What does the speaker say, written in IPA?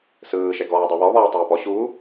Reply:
s ɯː ʃ ɛ ɡ ɔː dˤ e β ɔ β ɔː tˤ ɤː p ɔ ɕ u

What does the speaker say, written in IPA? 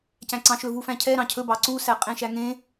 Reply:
c æ̃ ǀ ɑ̃ ʃ ɵ v u f æ̃ cʰ ɛ ɾ ɑ̃ cʰ ɵ b ɑ ǀ u s æ qʼ ẽ ʃ æ ŋ ẽ

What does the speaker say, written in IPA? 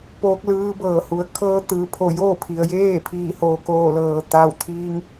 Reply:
p oː˧˥ k̚ l ɯː˧˥ b ɤː˧˩ h u˩˧ ə̯ kʰ ɤː˧˥ t̪ ɯː˩˧ pʰ o˧˩ j oː˥˨ pʰ i˩ ə̯ j eː˥˨ pʰ iː˧˩ h oː˩ k oː˧˩ l ɤː˩ t̪ a˧˩ w t̪ʰ iː˧ ŋ

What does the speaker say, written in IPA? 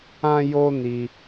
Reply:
ã˦ j o˦ n i˧

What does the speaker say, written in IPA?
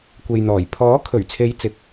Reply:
kʷ e˨ j n̪ ɔː˨˩ j pʰ ɔː˨˥ kʰ ɵ˨˩ ɥ t͡sʰ e˨˧ j t͡s ɪ˨˥ k̚

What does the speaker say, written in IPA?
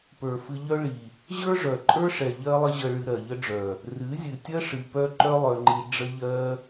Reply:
p ə˞˨ f ɨ˧ ʎ œ˦ ɭ i˨ | ʑ ə˞˦ ʐ œ˨ ǃʼ ə˞˦ ʂ ɛ˨ ʎ ɜ˦ lˠ ə˦ ʑ ə˧ ɭ ɨ˧ ɾ ɜ˨ ʎ ə˦ ɖ͡ʐ œ˨ | r ɨ˨˦ zʲ ɨ˨ tʲ ɜ˦ ʂ ɨ˧ p œ˦ ǃ œ˦ lˠ œ˧ ŋ͡ǃ i˧ ɖ͡ʐ ə˧ ʎ ɜ˧

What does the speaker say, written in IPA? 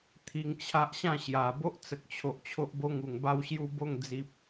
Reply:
t̪ʰ i˧ ŋ t͡ɕʰ a˦ ʔ ɕ ã˥˧ ɕ j a˨˩ b o˦ ʔ t͡s ə˨ k̚ t͡ɕʰ o˨ ʔ t͡ɕʰ o˦ ʔ b o˦ ŋ u˨˩ ŋ b a˥˧ w ɕ j u˥˧ b o˥˧ ŋ d͡z i˨ p̚

